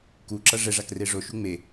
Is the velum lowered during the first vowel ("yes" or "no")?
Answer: no